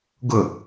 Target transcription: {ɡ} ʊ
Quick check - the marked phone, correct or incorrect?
correct